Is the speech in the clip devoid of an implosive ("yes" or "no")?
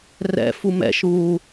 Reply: yes